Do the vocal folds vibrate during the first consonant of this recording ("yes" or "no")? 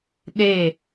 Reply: yes